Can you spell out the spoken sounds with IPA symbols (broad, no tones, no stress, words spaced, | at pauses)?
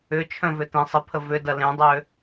ʏt͡ʃʰœ̃vʏ tẽ sˤəpʰə vʏdɐ lẽdˤø